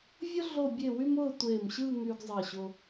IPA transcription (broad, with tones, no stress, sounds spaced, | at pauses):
vʲ ʊ˥ ɮ o˥˧ bʲ e˥˧ w y˥ m ʊː˥˧ tʷ eː˧˩ m ɕ ɯː˥˧ ŋ y˧ ɡ zˤ ɜ˧˩ ɕ ʊ˧